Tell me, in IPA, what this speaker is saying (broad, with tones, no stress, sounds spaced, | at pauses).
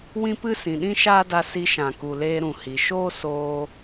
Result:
w ĩ˦ p ɨ˦ s ĩ˨ ɗ ĩ˦ ʃ aː˦ d a˧ s i˧ ʃ ã˨ k u˨ l eː˧ ɾ ũ˨ h i˨ ʃ oː˦ s oː˧